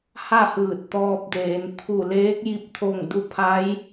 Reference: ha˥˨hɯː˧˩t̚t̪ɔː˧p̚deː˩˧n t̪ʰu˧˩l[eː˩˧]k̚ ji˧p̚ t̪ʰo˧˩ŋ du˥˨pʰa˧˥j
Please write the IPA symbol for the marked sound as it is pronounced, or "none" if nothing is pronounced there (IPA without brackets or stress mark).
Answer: eː˧˥